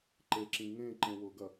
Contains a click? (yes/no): yes